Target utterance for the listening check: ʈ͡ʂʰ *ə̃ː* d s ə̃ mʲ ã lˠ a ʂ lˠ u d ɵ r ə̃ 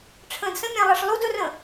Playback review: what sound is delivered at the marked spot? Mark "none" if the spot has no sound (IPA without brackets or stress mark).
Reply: ə̃ː